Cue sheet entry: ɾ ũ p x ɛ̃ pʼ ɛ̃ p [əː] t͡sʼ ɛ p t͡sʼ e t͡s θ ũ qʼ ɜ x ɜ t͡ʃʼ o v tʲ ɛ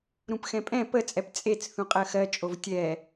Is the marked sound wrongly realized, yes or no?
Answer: yes